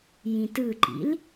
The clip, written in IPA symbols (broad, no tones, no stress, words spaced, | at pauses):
jĩtɯǃḭl